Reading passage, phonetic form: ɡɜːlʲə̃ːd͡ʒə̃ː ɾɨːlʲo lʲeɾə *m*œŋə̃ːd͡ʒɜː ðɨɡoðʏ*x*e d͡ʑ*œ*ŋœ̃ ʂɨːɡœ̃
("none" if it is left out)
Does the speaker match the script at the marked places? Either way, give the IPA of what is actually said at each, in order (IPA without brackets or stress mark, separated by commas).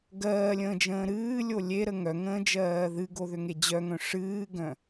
ŋ, ŋ, œ